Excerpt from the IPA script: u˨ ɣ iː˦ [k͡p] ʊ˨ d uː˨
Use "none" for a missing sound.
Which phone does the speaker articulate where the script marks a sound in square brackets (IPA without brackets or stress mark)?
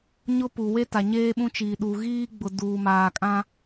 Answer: ɡ͡b